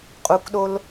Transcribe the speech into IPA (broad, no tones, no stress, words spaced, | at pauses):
qʼukɗol